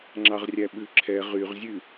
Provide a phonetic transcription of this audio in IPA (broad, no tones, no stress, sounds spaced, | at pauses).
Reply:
ŋ͡ǁ ɑ ʁ rʲ æ ɓ ʉ ǁʰ ɛ ʁ y ʁ zʲ ʉ